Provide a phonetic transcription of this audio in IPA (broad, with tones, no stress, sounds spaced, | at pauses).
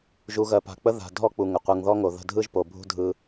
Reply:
ʒ u˨ ɣ ɜ˨ p a̤˨ k͡p ə˥ ð a̤˨ dʱ ɔ˥ k͡p u˨ ŋ ə˩ qʷ ɯ˨ ŋ ð ɔ˥ ŋ o˨ ð ə̤˦ dʱ ɯ˥ ʒ p o˨ bʱ ṳ˥ dʱ ɯ˦